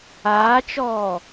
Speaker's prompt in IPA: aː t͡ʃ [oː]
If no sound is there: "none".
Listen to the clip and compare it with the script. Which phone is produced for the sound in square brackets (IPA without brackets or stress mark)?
ɔː